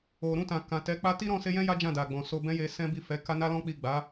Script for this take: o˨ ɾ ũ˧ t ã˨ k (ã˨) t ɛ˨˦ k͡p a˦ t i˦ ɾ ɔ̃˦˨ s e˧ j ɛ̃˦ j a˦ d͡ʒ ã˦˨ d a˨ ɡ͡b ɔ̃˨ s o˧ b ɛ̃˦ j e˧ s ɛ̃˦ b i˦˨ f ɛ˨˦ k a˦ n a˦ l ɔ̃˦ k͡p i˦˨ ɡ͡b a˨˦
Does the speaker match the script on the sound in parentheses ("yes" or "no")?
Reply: yes